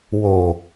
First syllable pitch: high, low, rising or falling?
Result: low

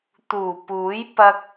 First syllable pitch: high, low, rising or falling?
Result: low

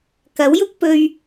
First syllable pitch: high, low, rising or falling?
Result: rising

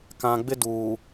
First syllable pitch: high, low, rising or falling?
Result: low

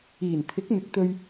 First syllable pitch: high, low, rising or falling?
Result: low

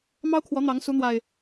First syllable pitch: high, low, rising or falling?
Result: high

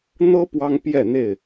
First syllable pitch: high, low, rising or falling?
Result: high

